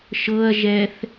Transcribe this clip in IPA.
ʃɤɐ̯ʒɛθ

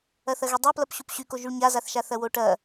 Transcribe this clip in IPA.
ɐθɐɣydˤo plɐpɕupɕyko ʒyɭɲazaθʃa θɐwoʈɐ

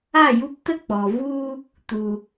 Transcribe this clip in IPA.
a˦˨ju˧ptə˦k͡pɔ˨ vu˧ | tu˨

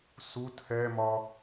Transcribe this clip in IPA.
su tʰɛmɒ

